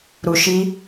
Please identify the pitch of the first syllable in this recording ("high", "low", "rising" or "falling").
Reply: low